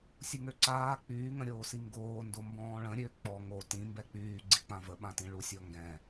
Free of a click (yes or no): no